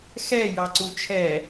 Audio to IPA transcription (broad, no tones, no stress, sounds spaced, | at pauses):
x ɛ j ɑ ǀ u t͡ʃʰ ɛ